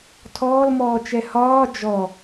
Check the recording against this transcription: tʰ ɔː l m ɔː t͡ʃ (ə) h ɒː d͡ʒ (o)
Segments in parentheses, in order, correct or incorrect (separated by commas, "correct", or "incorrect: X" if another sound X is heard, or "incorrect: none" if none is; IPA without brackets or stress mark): incorrect: ɛ, incorrect: ɔ